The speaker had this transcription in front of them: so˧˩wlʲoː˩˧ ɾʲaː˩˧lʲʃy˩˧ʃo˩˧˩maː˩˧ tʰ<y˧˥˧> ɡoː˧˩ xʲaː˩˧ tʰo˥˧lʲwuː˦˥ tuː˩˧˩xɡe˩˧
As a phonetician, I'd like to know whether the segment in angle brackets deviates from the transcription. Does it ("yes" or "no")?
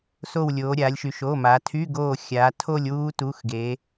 no